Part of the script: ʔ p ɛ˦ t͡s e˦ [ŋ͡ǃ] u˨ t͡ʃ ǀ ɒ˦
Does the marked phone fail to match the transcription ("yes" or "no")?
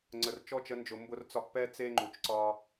no